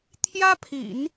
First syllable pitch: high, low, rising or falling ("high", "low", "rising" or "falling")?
high